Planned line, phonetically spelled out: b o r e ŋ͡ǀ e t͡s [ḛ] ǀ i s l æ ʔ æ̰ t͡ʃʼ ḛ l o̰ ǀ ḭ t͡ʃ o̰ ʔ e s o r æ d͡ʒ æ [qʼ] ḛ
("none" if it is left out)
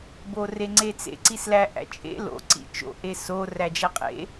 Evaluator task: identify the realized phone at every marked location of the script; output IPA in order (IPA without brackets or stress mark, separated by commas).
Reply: ḛ, qʼ